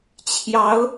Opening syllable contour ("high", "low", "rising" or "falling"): rising